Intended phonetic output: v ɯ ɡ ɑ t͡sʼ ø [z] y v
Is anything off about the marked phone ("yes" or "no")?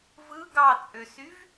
yes